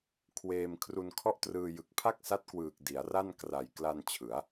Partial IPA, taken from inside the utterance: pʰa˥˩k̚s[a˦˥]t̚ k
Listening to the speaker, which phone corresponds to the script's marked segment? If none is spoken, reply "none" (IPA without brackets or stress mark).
a˦˥